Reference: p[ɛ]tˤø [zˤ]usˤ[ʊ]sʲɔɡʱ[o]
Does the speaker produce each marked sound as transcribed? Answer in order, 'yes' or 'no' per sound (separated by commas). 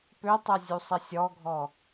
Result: no, no, no, no